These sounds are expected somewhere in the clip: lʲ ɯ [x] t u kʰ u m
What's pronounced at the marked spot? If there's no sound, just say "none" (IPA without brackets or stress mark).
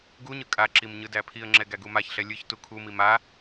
ç